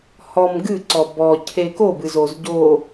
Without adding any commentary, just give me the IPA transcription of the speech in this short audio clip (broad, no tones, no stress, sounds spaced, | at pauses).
h ɔ m ɡ ɨ ǀ ɔ b ɔ cʰ e k o b ɨ z o z ɟ o